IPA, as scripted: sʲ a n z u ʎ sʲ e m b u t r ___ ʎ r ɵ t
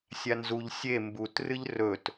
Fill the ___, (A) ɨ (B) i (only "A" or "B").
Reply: A